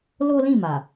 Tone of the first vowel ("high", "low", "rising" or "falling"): high